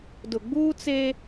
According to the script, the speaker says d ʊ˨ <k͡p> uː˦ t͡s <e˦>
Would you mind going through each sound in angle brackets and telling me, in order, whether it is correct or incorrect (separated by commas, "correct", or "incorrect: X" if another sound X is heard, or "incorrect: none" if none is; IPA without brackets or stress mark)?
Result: incorrect: ɡ͡b, correct